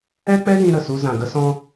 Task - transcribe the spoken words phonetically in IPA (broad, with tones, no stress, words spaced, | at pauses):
ɛ˦k͡pɛ˦ɣĩ˧ ɾə˨su˧ zã˨ɡə˧sɔ̃˧